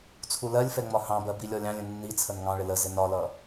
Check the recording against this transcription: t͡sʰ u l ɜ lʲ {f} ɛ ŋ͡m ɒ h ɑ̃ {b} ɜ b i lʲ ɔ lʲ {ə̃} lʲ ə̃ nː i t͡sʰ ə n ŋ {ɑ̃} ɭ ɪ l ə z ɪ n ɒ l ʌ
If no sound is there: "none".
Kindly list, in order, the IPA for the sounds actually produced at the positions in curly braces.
f, b, ɑ̃, ɑ̃

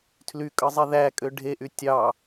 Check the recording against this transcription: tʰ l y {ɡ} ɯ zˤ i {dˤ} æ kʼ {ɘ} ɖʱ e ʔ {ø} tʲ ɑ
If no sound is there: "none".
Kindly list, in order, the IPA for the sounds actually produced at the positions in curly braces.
kʼ, ð, ø, y

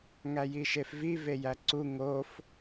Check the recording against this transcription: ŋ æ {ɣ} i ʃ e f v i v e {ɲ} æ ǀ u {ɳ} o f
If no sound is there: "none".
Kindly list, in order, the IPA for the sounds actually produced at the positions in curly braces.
j, j, ŋ

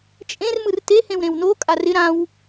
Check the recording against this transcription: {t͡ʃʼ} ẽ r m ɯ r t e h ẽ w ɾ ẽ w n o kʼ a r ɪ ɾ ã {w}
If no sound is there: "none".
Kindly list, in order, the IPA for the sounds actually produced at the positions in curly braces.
t͡ʃʼ, w

